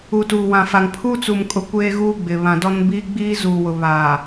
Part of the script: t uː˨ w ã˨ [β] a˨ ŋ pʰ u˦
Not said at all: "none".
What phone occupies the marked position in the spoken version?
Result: f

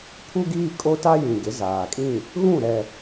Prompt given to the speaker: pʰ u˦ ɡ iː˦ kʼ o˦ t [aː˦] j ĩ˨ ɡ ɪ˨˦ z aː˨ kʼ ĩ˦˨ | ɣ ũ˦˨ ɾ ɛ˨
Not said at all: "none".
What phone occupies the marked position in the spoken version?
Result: a˦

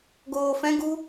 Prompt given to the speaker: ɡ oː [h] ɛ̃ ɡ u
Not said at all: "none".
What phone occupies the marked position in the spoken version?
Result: f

